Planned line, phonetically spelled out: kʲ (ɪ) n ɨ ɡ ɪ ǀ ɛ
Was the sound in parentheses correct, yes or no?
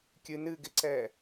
no